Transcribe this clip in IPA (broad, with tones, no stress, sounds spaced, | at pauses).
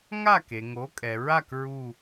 ŋ a˥˩ k e˩ ŋ o˩˥ kʼ ɛ˩ ɹ a˥˩ k ɹ u˧˩